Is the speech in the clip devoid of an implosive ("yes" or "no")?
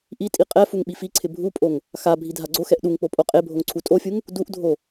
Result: no